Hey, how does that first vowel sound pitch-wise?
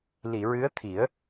low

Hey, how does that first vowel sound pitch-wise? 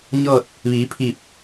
falling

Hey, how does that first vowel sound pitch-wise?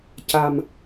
low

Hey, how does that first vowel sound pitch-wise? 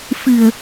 low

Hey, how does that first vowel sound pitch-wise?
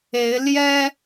rising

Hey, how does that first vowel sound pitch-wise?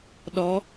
rising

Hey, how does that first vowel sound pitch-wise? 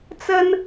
high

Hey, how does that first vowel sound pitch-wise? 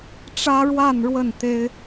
high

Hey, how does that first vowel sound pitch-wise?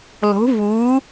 rising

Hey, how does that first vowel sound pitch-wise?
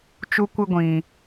high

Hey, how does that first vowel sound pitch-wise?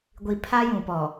low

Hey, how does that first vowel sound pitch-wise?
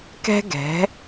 high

